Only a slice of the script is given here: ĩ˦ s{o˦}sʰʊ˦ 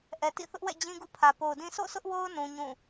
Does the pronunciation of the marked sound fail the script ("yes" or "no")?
yes